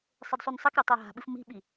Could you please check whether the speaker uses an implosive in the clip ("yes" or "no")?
yes